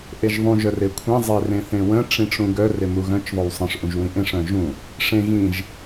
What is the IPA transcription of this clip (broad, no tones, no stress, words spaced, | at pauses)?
ʔeʒðˤũ ʒœrekʷʰẽ zˤerẽθẽwə̃ ʈ͡ʂĩʈ͡ʂũɡœ remuɣœ̃t͡ʃ ðˤøwsˤə̃ʂ ʔũʒwĩʔẽʂ œ̃ʒũ | ʂẽ ɣĩʒ